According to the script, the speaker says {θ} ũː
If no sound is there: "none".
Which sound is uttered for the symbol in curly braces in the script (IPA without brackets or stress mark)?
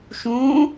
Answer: ʃ